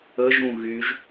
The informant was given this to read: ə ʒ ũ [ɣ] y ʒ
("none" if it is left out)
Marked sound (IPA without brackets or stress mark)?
ɣ